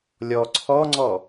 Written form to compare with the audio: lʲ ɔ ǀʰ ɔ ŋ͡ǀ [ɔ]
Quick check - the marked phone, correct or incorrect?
correct